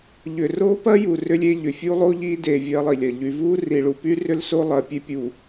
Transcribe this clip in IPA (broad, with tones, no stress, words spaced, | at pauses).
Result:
ʎʏ˨ro˦pɐ˦ ju˨ rʏ˦lʲe˦ʎʏ˨ fʲu˦lˠo˦ʎiː˦ de˨ vʲɐː˦lˠi˨lʲɐ˨ ʎy˨vuː˦ ri˨ɭu˨py˦ rʏ˦lso˦lˠɐː˨ pʲe˦pʲuː˨